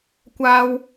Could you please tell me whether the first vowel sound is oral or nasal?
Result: oral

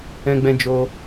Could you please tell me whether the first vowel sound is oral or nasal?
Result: nasal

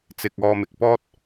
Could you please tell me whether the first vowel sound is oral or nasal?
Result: oral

